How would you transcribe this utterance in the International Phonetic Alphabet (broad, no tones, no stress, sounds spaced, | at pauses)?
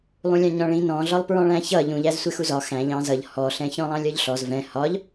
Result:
lˠ ũ lʲ ɑ̃ ɲ ɔ̃ ɭ ĩ n ɔ̃ ɮ ɒ lˠ p ɹ ɔ̃ ɭ æ̃ ç ʌ ʎ ũ ʎ æ z sʷ ɪ x u z ɒ x æ̃ ʎ ɑ̃ z ʌ ʎ h ɔ ɬ ɛ̃ ç ɔ̃ lˠ ɑ̃ lʲ ɒ ʎ ɬ ɔ z v ɛ̃ h ɒ ʎ